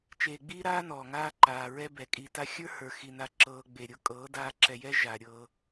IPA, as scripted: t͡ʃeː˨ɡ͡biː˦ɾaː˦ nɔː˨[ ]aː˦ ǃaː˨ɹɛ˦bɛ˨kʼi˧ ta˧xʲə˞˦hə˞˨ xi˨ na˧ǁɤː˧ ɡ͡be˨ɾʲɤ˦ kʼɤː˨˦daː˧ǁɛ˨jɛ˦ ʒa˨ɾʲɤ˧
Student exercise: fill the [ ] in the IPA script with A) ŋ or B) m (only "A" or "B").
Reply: A